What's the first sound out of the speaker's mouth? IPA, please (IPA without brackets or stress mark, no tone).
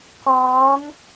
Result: k